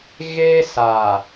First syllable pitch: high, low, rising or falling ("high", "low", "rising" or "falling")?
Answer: high